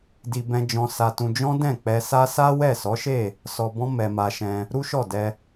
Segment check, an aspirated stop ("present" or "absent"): absent